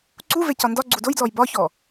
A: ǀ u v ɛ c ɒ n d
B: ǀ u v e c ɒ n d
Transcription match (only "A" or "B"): B